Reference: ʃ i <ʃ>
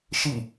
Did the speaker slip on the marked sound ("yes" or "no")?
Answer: yes